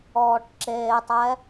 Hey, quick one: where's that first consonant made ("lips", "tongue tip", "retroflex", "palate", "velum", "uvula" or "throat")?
retroflex